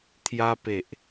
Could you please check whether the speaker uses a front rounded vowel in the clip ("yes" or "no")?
no